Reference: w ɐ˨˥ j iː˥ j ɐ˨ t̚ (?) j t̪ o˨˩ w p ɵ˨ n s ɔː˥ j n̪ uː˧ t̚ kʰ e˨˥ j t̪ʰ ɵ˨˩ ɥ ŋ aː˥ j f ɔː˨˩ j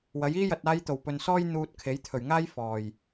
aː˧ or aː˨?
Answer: aː˧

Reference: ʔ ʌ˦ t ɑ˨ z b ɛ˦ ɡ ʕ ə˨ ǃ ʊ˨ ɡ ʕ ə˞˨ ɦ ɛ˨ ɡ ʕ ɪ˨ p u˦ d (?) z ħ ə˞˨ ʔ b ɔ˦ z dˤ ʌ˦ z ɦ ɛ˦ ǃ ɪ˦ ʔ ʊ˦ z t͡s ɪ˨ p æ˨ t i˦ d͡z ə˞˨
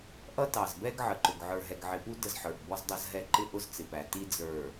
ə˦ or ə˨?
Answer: ə˦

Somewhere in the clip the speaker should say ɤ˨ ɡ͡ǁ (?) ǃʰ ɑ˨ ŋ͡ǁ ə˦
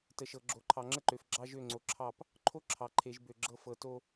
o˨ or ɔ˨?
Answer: o˨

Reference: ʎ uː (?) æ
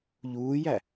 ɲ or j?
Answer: j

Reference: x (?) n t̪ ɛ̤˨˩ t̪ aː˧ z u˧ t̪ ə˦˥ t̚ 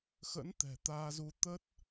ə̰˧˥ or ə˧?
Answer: ə̰˧˥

